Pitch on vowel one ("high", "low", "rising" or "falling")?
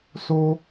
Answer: high